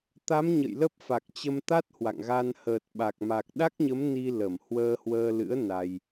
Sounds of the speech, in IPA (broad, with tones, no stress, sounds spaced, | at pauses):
t̪ a˨˦ m ɲ ə̰˧˨ j l ə˦˥ p̚ f a˨˩ k̚ t͡ɕ ə˧ m t̪ a˦˥ t̚ h w a̰˧˨ ŋ ɣ a˧ n h əː˨˩ t̚ ɓ a˨˩ k̚ m a˨˩ k̚ ɗ a˦˥ k̚ ɲ ə˨˦ m n i˧ l ə˧˩ m h w əː˧ h w əː˧ l ɨ̰˧˥ ə̯ n a˧ j